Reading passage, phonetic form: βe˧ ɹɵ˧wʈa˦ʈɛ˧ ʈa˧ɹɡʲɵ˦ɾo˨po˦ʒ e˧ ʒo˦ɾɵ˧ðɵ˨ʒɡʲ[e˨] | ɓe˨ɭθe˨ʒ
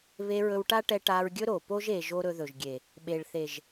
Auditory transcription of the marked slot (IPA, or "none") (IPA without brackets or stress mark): e˨